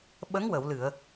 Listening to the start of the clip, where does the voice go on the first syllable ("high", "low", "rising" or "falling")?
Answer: rising